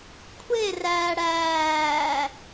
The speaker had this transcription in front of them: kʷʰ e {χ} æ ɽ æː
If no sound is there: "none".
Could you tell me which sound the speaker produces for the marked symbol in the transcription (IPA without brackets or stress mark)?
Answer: r